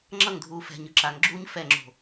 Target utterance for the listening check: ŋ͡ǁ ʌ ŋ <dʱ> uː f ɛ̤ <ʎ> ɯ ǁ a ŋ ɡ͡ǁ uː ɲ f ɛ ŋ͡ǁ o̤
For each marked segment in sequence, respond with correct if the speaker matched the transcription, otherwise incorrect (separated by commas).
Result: correct, incorrect